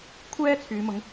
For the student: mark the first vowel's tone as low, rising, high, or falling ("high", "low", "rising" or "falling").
high